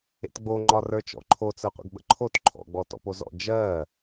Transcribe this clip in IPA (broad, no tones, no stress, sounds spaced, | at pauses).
ḛ t ɡ͡b o ŋ͡ǃ ɒ r ə˞ t͡ʃ ɔ̰ ǃʰ o t͡s ə˞ qʷ ə̰ ɡ ɓ ə̰ ǃʰ o t ǃʰ ɔ̰ ɡ͡b ɔ t ɔ̰ p o z ɔ̰ d͡ʒ ɜ